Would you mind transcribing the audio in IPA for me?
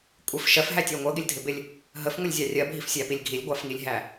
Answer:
kʷʼɪf ʃɜfɦætʲɜ ŋʷɜɡɪlʲdʱɪbɪlʲ | ɦəfŋʷəlʲzʲɑ rʲɜbʱifsʲæpilʲ ɡʱilʲɡʷɑfŋilʲɦæ

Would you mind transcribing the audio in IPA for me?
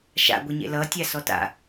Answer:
ʃa̰ɡʷeɲḛ lʌtʲa sɔta̰

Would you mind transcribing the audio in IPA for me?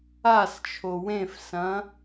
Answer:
ast͡ʃʰo wẽfsɐ̃

